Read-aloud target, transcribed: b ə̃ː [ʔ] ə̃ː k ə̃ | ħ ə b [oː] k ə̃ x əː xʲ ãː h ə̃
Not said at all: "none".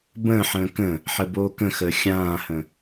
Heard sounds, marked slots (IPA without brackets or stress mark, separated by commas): ħ, oː